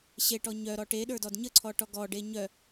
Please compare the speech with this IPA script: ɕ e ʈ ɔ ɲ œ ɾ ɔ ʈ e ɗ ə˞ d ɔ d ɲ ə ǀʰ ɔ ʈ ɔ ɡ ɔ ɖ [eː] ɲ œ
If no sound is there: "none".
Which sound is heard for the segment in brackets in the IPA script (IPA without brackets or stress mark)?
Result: e